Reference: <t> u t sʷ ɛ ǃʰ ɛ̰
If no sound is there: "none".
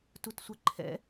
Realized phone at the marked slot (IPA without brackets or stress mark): t